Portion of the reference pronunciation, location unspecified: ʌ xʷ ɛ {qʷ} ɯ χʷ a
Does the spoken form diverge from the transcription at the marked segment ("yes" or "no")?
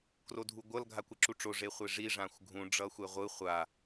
yes